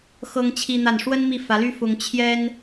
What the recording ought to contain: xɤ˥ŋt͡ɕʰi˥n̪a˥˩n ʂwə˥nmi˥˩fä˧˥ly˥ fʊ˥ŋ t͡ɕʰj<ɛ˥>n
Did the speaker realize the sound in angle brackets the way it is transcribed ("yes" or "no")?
yes